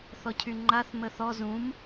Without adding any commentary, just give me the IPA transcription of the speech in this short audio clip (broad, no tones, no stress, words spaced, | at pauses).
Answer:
θɔcʰyŋ͡ǃaθ məθɔ zũm